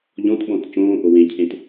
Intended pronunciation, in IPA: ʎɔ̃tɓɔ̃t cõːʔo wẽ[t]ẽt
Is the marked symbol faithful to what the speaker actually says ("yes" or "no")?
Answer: no